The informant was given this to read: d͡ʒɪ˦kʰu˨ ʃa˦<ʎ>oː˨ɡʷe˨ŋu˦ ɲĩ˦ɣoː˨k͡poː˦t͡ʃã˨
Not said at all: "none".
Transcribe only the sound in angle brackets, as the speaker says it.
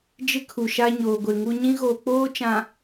ɲ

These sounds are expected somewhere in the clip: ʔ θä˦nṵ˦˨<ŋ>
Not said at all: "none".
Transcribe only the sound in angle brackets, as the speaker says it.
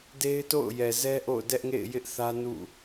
none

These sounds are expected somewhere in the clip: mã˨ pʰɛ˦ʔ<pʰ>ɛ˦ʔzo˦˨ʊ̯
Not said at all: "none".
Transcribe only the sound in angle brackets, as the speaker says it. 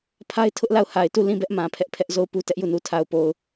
pʰ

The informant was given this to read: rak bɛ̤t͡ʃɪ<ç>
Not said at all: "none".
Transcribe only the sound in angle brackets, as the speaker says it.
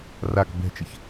ç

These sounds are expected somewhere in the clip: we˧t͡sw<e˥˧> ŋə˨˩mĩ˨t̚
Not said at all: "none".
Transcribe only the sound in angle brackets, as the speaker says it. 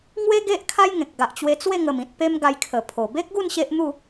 e˥˧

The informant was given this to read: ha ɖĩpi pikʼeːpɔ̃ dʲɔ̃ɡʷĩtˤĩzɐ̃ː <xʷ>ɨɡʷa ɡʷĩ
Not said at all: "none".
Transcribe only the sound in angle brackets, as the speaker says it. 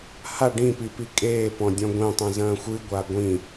xʷ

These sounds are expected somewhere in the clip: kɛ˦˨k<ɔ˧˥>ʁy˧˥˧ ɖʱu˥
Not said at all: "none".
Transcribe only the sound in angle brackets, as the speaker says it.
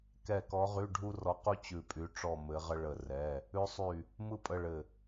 ɔ˧˥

